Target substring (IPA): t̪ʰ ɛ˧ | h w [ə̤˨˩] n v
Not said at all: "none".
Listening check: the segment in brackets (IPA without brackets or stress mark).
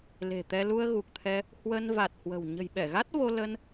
ə˧